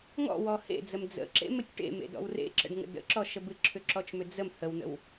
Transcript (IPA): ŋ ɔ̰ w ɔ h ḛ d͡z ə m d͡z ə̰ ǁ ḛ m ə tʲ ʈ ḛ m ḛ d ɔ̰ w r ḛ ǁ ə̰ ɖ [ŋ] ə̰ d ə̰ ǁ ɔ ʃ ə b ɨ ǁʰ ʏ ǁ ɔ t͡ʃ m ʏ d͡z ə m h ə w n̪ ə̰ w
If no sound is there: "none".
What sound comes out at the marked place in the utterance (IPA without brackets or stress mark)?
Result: ŋ